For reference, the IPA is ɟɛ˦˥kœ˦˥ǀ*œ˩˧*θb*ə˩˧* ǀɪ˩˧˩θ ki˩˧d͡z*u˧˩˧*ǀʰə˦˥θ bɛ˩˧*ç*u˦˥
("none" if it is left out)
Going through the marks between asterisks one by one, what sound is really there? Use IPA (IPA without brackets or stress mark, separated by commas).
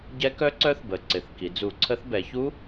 œ˦˥, ə˩˧, u˧˩˧, ç